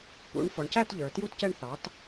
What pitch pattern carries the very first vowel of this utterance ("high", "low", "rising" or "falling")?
rising